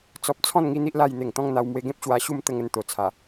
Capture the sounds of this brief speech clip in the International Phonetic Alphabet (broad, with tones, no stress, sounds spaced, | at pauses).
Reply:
t͡s ɔ˨ p̚ t͡sʰ ɔ̃˥˧ n ŋ i˥˧ n̪ i˦ ʔ l a˧ j n̪ e˨˩ ŋ t̪ ɔ̃˥˧ ŋ n̪ a˧ w m w e˧ ɡ ẽ˦ p̚ ɕ w a˧ ɕ u˥˧ m t̪ ə˧ ŋ ə˧ n t̪ o˨˩ t͡sʰ a˨˩